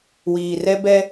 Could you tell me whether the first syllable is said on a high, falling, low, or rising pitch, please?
low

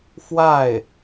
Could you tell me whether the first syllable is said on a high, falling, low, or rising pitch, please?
falling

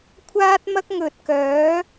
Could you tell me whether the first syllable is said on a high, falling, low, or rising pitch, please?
high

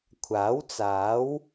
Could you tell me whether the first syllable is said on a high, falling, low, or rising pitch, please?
rising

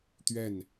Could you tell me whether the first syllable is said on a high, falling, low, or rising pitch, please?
falling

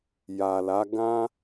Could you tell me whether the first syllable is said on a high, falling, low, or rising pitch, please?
low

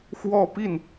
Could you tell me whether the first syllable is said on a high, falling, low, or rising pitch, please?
falling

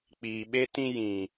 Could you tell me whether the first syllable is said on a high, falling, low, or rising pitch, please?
low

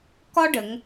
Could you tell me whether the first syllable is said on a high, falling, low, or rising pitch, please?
high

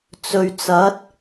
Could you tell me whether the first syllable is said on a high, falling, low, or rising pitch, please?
low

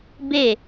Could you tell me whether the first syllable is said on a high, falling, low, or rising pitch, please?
falling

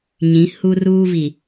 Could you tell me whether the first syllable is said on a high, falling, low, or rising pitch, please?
rising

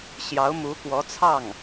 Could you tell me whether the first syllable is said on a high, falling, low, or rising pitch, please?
rising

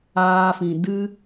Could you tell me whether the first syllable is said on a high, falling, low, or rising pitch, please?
high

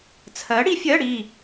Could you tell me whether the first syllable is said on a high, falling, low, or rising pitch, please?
rising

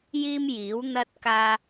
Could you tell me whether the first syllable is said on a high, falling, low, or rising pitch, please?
high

